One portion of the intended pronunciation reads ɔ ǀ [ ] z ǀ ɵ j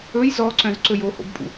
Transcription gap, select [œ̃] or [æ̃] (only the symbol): œ̃